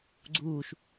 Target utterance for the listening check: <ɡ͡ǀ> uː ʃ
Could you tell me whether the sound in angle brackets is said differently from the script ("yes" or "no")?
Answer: no